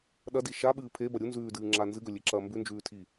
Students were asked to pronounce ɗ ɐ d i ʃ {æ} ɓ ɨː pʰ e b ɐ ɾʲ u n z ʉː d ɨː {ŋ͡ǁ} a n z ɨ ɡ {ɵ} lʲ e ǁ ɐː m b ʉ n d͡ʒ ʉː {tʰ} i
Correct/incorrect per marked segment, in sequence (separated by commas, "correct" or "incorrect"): incorrect, correct, correct, correct